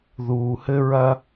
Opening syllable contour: low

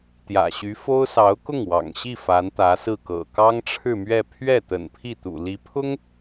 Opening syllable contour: low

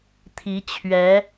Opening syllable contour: rising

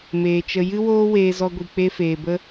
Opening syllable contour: low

